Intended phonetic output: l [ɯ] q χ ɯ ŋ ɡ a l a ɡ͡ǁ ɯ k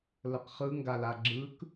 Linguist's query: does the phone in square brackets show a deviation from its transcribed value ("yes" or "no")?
yes